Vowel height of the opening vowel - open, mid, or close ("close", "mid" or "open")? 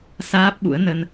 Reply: open